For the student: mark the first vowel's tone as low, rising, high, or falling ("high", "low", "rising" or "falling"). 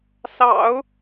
low